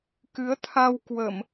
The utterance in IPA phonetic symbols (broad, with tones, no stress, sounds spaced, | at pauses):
k ɨ˨˦ ə̯ t̪ʰ a˧ w k w ə˧˩˨ m